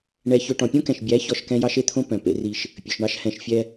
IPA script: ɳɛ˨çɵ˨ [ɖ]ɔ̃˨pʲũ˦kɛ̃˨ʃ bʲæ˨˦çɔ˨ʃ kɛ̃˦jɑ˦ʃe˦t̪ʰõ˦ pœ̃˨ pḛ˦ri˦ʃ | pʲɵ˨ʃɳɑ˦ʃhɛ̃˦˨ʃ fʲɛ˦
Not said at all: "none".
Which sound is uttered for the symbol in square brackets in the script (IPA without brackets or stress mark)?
ʈ